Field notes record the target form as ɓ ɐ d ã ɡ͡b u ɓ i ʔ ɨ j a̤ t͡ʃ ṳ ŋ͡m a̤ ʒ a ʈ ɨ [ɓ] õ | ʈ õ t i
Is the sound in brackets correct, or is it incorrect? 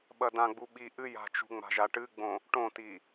incorrect: ɡ͡b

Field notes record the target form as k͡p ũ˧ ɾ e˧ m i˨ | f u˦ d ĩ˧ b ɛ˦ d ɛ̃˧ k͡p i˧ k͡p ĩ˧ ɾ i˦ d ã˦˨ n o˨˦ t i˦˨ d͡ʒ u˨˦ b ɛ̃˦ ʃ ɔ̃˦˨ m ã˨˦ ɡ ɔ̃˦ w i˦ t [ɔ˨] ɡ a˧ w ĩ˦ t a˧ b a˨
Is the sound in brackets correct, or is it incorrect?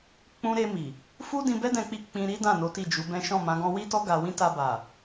incorrect: ɔ˦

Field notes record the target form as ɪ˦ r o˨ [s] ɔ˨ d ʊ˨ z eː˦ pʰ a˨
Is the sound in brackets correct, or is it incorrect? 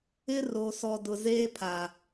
correct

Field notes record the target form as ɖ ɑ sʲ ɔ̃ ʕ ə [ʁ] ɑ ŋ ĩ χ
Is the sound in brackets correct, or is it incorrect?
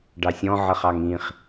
incorrect: χ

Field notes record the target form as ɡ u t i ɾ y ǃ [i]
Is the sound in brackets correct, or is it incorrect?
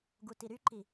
correct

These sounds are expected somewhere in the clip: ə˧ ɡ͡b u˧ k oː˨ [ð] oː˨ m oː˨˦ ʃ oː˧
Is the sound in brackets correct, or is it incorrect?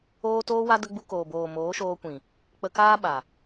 incorrect: b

